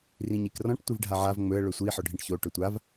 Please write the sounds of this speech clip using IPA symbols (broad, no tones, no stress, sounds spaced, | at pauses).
r ĩ ɲ i k r ɔ̃ ʈ tʷ i v ɖʱ a ʕ a v ŋ͡m ɵ ə̯ ɭ ɵ sʷ i ħ ɔ ɖʱ ĩ ʈ ç o ʈ ɵ tʷ a v